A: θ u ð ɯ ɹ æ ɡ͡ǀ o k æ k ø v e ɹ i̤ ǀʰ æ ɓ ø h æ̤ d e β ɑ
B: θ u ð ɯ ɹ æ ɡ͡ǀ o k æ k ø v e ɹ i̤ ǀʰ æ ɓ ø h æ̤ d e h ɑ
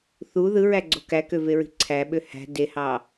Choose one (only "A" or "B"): B